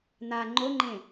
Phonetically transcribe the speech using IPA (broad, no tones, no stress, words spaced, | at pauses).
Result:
n̪a ŋ͡ǃoŋ͡ǃẽ